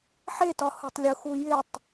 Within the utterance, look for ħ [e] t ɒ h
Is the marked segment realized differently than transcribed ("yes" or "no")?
no